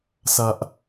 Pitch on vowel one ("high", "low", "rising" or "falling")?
low